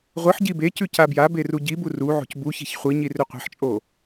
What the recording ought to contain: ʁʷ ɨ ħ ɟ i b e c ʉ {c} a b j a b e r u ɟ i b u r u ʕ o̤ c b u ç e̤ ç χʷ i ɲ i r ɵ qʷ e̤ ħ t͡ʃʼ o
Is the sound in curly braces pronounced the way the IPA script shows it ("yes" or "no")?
yes